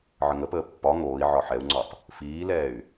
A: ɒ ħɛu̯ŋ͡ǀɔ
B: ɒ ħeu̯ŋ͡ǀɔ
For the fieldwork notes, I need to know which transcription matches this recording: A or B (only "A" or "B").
A